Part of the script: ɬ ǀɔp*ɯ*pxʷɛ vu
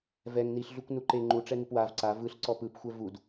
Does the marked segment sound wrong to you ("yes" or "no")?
no